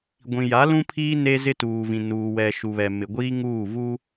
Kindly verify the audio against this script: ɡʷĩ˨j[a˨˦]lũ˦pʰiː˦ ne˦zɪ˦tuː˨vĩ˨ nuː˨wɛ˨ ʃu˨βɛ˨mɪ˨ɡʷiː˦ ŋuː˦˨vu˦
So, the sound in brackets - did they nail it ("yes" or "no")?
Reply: yes